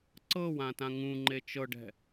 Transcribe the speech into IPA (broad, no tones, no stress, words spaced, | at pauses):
ǀɤwãtã ŋũŋ͡ǃe t͡ʃɤɖɛ̤